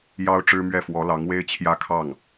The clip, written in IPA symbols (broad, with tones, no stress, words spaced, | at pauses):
jɑ˥ʊ̯ʈ͡ʂɻ̩˥mɥɛ˥˩ fwɔ˧˥lɑ˧˥ŋwe˥ɪ̯ t͡ɕʰjä˥kʰɑ˥˩ŋ